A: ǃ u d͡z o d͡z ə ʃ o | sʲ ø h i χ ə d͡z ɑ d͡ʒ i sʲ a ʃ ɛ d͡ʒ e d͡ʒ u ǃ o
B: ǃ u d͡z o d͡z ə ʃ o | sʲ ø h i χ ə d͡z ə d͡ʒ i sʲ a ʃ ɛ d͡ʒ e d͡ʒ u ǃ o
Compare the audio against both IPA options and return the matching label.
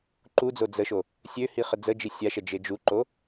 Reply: B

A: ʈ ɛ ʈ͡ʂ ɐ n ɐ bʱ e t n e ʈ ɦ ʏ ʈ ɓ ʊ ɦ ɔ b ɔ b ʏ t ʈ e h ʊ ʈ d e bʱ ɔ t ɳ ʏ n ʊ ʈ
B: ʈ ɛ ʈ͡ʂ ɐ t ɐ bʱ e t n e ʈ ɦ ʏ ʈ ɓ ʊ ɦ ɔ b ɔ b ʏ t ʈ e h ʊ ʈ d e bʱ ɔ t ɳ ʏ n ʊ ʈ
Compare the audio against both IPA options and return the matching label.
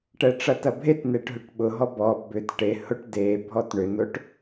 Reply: B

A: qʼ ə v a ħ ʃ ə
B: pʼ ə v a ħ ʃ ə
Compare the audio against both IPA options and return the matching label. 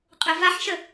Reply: A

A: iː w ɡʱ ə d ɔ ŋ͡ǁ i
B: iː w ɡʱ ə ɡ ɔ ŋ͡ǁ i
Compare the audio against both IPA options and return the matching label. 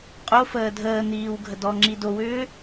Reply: A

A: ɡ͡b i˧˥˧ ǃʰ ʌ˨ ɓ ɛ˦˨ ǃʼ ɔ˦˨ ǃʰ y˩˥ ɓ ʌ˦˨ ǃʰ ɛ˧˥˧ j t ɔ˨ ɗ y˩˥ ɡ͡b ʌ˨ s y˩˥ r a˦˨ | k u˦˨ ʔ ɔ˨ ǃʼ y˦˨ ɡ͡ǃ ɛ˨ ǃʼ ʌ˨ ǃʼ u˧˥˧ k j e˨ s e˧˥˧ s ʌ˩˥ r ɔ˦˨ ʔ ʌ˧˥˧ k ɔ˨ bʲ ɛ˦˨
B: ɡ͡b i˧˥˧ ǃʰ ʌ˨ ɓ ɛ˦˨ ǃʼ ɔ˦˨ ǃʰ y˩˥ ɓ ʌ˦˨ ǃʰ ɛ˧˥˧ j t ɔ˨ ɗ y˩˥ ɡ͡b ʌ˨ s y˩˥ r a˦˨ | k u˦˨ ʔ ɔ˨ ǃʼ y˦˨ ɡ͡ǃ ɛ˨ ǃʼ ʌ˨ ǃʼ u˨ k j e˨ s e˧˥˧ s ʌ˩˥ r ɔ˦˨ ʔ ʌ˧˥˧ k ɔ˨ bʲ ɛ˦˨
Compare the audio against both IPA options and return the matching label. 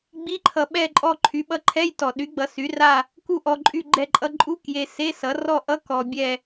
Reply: A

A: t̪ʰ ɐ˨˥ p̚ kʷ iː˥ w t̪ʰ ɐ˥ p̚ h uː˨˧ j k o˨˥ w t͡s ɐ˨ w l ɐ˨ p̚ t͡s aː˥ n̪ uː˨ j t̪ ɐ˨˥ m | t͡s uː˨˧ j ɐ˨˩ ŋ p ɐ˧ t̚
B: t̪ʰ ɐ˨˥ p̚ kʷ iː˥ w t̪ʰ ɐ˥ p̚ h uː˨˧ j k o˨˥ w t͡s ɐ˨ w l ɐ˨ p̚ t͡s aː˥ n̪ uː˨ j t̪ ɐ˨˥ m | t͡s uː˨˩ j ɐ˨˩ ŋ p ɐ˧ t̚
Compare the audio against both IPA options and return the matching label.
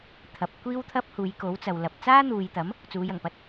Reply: A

